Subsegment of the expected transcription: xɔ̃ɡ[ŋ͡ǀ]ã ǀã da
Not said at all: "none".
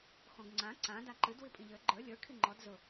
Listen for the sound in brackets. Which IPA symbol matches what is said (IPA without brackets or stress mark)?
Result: ŋ͡ǀ